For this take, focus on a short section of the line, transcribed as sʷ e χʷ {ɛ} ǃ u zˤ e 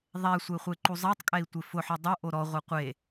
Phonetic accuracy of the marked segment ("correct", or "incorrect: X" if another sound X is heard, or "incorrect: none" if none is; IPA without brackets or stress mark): incorrect: e